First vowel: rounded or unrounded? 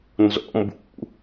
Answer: rounded